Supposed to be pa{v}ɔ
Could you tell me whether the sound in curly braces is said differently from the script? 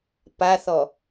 yes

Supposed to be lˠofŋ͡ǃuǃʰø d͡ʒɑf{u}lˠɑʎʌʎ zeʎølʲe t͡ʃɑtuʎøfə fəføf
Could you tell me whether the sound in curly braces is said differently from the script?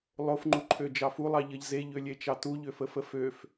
no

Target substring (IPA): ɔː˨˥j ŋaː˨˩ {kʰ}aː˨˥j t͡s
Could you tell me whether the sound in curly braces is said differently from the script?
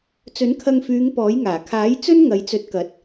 no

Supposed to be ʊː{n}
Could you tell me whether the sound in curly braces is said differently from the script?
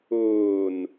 no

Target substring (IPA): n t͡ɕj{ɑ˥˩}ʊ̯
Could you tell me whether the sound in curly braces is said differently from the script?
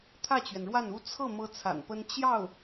no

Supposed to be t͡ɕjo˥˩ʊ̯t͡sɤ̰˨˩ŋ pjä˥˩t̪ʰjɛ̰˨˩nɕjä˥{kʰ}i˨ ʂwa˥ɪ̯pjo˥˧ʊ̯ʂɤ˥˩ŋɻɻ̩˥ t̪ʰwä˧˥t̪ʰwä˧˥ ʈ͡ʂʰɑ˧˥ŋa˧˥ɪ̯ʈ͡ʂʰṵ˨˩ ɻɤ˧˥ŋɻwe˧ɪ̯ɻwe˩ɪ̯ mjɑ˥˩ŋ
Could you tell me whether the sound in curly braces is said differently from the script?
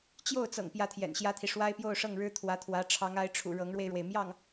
yes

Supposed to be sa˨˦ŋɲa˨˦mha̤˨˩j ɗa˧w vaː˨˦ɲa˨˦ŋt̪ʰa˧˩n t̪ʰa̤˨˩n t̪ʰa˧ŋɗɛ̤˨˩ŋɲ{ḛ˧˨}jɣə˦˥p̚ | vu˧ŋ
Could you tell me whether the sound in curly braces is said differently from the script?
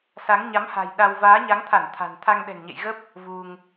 no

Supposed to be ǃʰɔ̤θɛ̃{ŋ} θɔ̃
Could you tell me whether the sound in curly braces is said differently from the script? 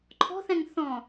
no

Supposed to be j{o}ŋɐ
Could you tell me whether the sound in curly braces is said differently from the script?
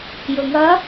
yes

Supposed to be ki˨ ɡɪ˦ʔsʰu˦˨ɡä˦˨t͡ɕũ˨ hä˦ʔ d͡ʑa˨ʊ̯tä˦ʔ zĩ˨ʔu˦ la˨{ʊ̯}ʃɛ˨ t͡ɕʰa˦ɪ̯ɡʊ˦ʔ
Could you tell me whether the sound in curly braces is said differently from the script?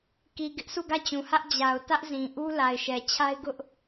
yes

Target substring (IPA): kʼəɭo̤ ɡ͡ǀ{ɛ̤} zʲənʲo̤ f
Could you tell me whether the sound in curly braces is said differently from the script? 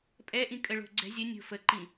no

